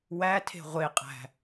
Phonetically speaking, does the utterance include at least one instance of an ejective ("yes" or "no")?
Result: yes